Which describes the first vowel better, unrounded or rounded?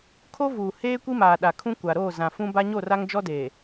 rounded